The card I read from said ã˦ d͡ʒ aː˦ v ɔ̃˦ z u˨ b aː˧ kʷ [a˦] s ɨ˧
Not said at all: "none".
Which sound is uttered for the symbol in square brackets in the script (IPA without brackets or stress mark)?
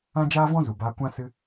ã˦